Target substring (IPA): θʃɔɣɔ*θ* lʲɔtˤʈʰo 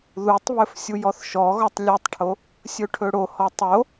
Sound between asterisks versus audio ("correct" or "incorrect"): incorrect